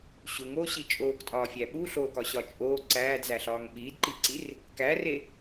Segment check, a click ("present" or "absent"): present